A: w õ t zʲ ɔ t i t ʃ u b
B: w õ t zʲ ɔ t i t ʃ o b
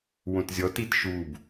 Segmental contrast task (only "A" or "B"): A